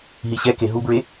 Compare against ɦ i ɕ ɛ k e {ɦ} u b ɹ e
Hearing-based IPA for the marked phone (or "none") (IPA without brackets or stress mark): ɦ